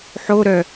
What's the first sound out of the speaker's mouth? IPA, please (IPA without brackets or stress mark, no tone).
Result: ħ